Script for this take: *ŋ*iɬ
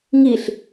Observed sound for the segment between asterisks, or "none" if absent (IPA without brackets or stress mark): ŋ